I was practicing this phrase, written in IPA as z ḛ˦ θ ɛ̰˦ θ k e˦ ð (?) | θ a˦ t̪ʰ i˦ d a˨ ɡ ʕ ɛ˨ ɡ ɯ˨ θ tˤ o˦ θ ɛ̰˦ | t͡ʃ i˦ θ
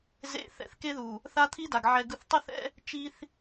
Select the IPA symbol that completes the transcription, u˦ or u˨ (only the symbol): u˨